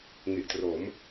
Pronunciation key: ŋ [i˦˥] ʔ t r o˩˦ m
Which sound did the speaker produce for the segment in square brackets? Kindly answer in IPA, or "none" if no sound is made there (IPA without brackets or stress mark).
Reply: i˨˩